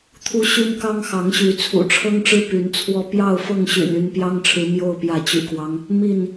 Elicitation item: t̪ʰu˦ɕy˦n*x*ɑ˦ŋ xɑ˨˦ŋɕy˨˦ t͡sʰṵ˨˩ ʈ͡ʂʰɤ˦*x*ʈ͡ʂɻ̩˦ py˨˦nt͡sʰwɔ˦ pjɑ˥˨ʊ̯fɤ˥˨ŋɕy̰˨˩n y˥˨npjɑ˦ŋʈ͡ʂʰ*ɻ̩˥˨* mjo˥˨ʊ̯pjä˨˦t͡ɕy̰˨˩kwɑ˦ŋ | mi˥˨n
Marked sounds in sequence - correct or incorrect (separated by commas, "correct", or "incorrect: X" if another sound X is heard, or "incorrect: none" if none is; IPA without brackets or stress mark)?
incorrect: k, incorrect: ŋ, incorrect: ɻ̩˨˦